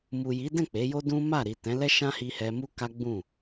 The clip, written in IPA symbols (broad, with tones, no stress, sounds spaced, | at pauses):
m u˨ j i˨˦ d ɛ̃˦˨ k͡p e˨˦ j o˦ d ũ˦ m a˦˨ ɾ i˨ t ɛ̃˨˦ l ɛ˦ ʃ ã˦ h i˧ h ɛ˧ m u˦ k a˦ ɡ͡b ũ˦˨